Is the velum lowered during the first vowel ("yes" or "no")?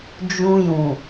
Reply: yes